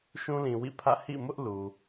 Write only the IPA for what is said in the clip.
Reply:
ʃ ũ˦ l ĩ˨ w ḭ˦˨ pʰ ä̰˦˨ h ḭ˦˨ m ʊ˦ ʔ l u˨

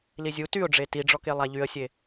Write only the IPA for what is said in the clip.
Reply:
l i zʲ u t y ʊ̯ ɖ͡ʐ e t i ɖ͡ʐ ɔ k e lˠ a ʎ y ə̯ sʲ e

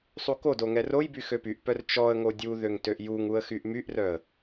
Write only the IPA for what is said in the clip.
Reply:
sˤ u k o d o ŋ ɛ r o j b y x ø p y ʔ p œ r t͡ʃ ɔ ə̯ ŋ o dʲ u ð ø ŋ t ø ʔ j u ŋ u ə̯ x y ʔ m y ʔ r œ ə̯

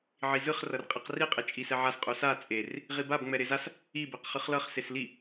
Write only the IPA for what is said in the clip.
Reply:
ʕ i z ɯ χ r ʌ r qʼ i q r i qʼ e t͡ʃʼ i s ɛ ʕ a s qʼ u s a t͡sʼ e r | ʁ i b a b ŋ͡m ɛ ɾ e z a s | i b e q χ ɯ χ l ʌ χ s e s l i

